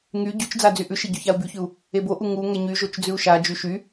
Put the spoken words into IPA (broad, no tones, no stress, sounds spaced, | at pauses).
ŋ y ɟ y t͡ʃ d͡z a d͡z y ʔ ʉ ʃ e ɟ ʉ ç a u̯ b y ç ʉ u̯ | e b o ʔ u ŋ u ŋ ɛ ɲ y ʒ o t͡ʃ d͡z ʉ u̯ ʃ a d͡ʒ y ʃ y